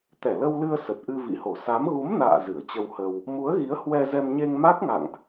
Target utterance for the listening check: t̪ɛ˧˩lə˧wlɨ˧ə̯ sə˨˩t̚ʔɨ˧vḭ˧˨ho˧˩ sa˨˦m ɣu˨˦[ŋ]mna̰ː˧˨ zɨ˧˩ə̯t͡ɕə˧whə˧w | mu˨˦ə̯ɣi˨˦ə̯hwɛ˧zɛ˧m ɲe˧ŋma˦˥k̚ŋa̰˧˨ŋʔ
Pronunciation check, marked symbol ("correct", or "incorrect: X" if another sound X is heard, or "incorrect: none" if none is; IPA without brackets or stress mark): incorrect: none